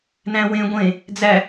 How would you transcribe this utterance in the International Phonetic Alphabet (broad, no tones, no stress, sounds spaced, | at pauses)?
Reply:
n æ̃ w ẽ ɡʷ ẽ | d͡z æ